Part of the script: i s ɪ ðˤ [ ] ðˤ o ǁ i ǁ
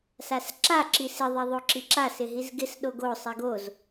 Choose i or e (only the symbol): i